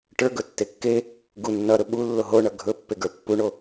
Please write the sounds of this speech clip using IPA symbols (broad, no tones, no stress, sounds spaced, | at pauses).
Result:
ʈ ə˞ ɡ ɵ tː e kː e | ɡ u nː ʌ ɾ ɵ ɓ u lː o ɦ o ɳ ʌ ɡʱ ɵ pː e ɡ ə˞ pː u ɳ o